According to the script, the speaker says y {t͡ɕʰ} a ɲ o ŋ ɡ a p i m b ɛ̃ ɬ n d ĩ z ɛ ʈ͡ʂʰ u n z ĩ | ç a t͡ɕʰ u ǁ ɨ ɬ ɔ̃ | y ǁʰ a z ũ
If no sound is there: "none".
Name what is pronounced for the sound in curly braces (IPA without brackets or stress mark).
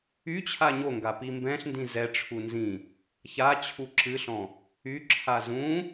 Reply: t͡ɕʰ